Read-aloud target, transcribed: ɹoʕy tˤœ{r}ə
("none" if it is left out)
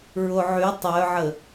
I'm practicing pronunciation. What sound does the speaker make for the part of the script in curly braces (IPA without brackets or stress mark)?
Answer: ʕ